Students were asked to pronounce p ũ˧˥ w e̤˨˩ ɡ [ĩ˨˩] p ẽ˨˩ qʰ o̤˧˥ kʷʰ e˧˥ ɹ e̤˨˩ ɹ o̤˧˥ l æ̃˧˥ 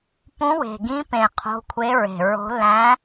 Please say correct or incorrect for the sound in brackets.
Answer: incorrect